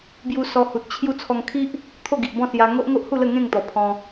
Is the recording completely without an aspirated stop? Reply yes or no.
no